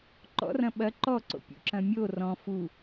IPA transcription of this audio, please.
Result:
ǃ ɔ̰ r ɐ̃ ɓ ɐ ǃ ɔ ǀ o̰ pʲ ṵ ǁ ɐ̃ mʲ o r ɔ̃ f u

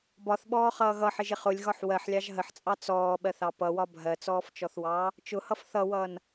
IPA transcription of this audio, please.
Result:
b ɒ θ ɓ ɔː χ ʌː ɣ ʌ ħ ɪ ʒ ɪ χ ʊ lʲ ɣ ɒ ħ w ɜ ħ lʲ ɑ ʒ ɦ ə ħ t͡sʼ ɑ t͡s ɔː ɓ ɜ θ ɑ p ʌ w ɒ bʱ ɜ t͡s ɔː f t͡ʃ ɔ θ w ɑː | t͡ʃ ʊ h ʌ f θ ʌ w ʌː n

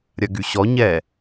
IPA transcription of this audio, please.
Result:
ɾʲ ɐ ɡ y ɕ ɔ ɲ ɛ

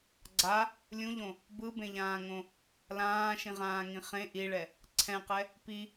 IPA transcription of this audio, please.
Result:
ɡ͡ǀ a | lʲ ũ ʎ õ | b ɯ b ẽ ʎ ãː ŋ õ | l ãː ʃ ĩ ʁ ãː ŋ ĩ χ ẽ ʔ i ɭ ɛ | ǀʰ ɛ̃ q ɛ | p i

